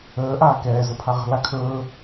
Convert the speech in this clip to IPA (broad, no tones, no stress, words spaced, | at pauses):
əː ʔaːkɛː zəpʰaʁə̤ lakʰɵː